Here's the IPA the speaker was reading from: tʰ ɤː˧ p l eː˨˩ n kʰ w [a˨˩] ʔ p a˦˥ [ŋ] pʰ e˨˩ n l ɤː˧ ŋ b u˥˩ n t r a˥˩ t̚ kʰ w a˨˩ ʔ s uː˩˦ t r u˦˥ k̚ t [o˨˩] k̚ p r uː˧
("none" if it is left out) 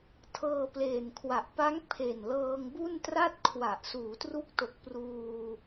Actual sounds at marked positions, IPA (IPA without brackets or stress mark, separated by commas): a˨˩, ŋ, o˨˩